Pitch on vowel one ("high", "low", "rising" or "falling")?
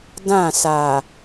falling